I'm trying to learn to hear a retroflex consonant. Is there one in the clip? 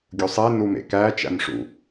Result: yes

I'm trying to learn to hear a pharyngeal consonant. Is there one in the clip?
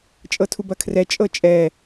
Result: no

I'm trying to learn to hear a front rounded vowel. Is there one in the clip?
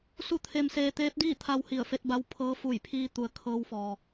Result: no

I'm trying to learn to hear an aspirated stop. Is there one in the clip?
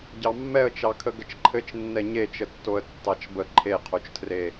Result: yes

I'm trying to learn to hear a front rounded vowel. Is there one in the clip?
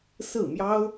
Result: no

